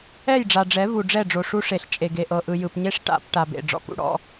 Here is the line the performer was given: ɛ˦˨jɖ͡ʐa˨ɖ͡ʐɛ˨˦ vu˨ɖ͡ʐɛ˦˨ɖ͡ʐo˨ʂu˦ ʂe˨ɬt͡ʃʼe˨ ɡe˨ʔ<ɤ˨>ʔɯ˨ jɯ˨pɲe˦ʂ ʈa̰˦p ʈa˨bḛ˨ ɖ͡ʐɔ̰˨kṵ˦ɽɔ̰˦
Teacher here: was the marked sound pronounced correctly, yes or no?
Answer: yes